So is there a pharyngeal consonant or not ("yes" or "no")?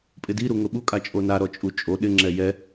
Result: no